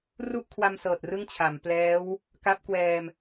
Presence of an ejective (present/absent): absent